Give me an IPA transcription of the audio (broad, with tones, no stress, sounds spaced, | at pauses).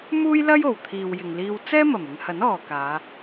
m uː˥ j l ɐ˥ j o˨˩ w t̪ʰ iː˨ w j ɪ˨ ŋ l iː˧ w t͡s ɛː˥ m ɐ˨˩ m ɪ˨˧ ŋ h ɐ˨˥ n ɔː˨ k aː˨˧